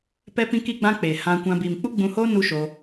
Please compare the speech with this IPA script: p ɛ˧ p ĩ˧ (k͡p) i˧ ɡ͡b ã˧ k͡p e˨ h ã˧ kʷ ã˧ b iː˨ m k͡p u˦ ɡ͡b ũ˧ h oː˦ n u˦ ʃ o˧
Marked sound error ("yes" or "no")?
yes